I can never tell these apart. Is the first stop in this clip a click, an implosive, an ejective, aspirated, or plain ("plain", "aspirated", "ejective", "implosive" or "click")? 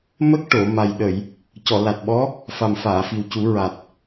plain